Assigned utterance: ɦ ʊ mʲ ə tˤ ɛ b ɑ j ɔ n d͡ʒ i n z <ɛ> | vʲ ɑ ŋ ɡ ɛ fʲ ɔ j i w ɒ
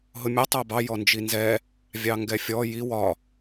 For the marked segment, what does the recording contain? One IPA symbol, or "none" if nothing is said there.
ɛ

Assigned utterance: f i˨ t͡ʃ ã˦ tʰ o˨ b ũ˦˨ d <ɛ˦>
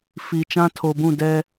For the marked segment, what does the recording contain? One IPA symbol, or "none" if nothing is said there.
ɛ˦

